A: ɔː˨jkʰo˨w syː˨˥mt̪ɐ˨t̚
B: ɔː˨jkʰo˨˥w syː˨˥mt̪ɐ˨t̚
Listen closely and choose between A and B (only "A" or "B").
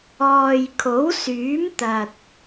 B